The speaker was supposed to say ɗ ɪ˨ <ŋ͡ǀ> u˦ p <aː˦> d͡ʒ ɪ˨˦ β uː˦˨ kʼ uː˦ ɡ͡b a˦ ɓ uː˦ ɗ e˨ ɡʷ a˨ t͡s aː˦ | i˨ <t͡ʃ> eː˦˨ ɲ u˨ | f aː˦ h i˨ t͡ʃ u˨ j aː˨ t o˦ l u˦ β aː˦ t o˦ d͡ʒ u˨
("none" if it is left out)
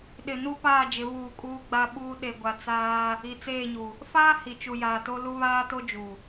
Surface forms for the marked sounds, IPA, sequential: n, aː˦˨, t͡s

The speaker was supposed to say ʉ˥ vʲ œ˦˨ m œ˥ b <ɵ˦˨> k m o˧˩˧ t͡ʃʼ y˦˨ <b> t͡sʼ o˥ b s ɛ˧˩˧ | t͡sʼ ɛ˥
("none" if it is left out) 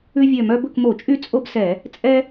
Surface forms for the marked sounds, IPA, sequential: ɵ˦˨, none

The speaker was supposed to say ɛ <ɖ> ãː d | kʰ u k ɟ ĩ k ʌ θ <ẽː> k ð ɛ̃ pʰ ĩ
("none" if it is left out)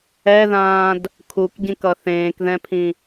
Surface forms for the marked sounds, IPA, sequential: ð, ẽː

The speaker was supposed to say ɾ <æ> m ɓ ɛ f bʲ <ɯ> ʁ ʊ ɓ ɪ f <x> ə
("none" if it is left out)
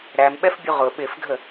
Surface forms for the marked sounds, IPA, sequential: æ, u, ɡʱ

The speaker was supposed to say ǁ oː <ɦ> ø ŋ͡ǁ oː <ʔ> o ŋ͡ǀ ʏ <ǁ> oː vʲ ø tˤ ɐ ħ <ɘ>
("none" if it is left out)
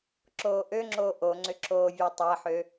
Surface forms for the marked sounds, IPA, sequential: ʔ, ʔ, ǁ, ø

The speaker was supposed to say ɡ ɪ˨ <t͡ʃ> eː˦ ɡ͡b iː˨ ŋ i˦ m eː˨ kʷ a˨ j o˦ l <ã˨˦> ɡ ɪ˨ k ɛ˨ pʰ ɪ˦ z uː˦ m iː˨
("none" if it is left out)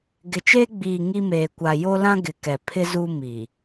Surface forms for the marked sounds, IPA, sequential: t͡ʃ, ã˦

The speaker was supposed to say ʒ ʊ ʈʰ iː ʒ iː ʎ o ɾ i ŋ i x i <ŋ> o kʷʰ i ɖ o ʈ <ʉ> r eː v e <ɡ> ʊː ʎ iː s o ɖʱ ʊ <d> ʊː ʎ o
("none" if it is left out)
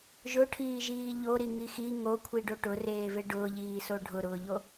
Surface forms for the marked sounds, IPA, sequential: ŋ, ʊ, ɖ, ɾ

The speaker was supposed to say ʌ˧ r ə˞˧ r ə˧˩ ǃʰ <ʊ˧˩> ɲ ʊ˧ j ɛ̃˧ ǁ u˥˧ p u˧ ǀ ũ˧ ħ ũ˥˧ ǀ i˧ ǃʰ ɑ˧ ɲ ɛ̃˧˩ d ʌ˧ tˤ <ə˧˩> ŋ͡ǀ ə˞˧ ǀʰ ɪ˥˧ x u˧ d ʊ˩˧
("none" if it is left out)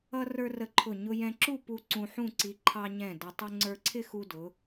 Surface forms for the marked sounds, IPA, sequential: ʊ˧˩, ə˥

